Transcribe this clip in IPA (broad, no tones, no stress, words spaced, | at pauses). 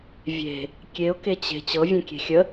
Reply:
vʲe̤ | kʲeʊ̯ket͡ɕe̤ t͡ɕɤvʲẽkʲe̤ xʲə